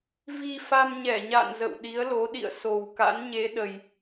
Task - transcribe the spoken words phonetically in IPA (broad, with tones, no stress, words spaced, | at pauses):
vi˧fa˧mɲɛ˧˩ɲa̰˧˨n zə̰˧˨w ɗi˨˦ə̯lo˨˦ɗḭ˧˨ə̯ so˨˩wka̰˧˥nɲe˨˦ ɗə˧j